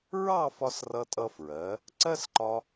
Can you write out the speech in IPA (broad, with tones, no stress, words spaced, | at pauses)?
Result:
ɹɑ˥˧fɒ˧s rʌ˧tʼʌ˧ fɹɜ˩˧ | ǀɜ˥sǃɒ˧